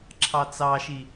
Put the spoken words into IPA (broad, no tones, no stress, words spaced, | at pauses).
ǁʰɑt͡sɑʃi